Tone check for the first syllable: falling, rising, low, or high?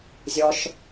high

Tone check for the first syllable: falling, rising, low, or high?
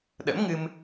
rising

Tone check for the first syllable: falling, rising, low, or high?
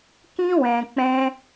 high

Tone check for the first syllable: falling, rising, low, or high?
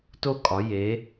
falling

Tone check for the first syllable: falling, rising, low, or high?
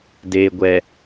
low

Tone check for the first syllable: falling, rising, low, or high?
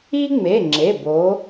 high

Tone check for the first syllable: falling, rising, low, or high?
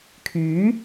rising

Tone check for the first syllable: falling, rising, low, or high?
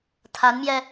rising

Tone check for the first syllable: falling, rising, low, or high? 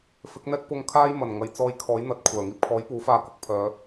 rising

